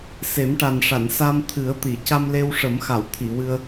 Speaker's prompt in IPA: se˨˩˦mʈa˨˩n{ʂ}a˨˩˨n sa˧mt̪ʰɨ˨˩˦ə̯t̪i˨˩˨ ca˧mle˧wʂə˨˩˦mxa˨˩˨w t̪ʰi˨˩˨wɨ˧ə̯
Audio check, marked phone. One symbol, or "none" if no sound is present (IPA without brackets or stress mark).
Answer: ʂ